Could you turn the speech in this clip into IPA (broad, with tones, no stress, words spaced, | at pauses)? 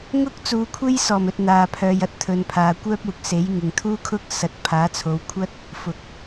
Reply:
ŋʊ˥k̚t͡suː˨˧kʷʰe˥j sɔː˨˩mɵ˨t̚ n̪aː˨ pʰœː˨jɐ˨˥t̚t̪ʰɵ˨npʰaː˨ kʷœː˥p̚uː˨k̚se˨˥j ŋɪ˨ŋt̪ʰuː˥ kʰʊ˥k̚ sɐ˨˥t̚pʰaː˨˥t͡sʰo˨˧wkʷʰɐ˥t̚ | fʊ˨k̚